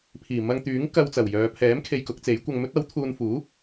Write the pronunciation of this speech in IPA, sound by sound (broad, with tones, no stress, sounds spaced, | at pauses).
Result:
pʰ iː˨˩ m ɐ˧ ŋ t̪ yː˨˥ ŋ k ɐ˧ w t͡s ɐ˨˩ w j œː˨ pʰ ɛː˨˥ m kʰ e˧ j k ʊ˨˥ k̚ t͡s e˨˥ j kʷ ɐ˧ ŋ m ɵ˥ t̚ ɐ˨˥ w t̪ʰ uː˧ n f uː˨˥